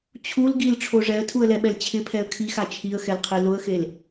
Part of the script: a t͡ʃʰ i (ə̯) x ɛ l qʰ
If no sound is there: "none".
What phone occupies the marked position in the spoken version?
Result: ə̯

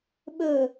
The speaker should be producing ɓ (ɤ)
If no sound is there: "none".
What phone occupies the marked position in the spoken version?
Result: ɵ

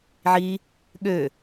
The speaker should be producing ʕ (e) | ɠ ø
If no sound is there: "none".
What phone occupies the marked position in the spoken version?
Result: i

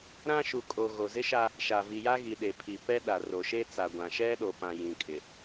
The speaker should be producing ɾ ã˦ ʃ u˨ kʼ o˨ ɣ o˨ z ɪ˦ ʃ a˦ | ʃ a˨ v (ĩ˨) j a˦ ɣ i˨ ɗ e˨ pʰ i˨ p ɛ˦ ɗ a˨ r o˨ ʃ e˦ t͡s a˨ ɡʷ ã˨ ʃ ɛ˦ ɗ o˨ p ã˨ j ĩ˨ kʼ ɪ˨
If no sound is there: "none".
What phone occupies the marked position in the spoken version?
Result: i˨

